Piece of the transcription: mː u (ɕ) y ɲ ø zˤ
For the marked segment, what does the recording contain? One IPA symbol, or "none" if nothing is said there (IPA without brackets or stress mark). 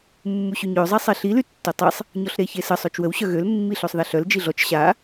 ɕ